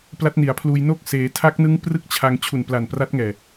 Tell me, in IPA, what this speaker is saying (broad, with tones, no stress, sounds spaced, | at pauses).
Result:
p l a˦˥ t̚ n i˩˦ a̯ pʰ l uː˧ j n o˥˩ k̚ s eː˧ tʰ a˦˥ k̚ n ɯ˦˥ ŋ p r ɯ˥˩ k̚ t͡ɕʰ a˧ ŋ t͡ɕʰ u˨˩ n p l a˨˩ n p r a˦˥ t̚ ŋ ɛː˨˩